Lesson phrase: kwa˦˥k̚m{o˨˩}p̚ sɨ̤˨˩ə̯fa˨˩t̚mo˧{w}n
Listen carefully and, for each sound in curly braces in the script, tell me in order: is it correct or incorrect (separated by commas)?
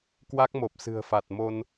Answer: correct, incorrect